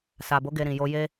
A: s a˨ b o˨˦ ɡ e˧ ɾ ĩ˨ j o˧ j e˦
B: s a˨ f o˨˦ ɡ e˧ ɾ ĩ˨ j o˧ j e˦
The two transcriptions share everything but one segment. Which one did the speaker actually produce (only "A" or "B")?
A